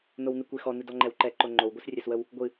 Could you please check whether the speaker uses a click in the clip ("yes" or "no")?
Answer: yes